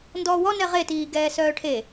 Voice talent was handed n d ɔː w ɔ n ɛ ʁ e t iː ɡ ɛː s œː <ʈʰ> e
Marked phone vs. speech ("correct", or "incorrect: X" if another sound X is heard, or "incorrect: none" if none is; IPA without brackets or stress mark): correct